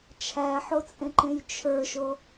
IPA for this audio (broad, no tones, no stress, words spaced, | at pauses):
t͡ʃʰæħot͡sʼẽǃẽj t͡ʃʰə˞ʃo